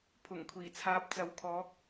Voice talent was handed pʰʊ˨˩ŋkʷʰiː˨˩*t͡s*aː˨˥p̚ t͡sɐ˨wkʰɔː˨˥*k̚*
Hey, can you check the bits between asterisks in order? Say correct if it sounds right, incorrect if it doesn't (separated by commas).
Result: incorrect, correct